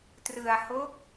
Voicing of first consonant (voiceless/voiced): voiceless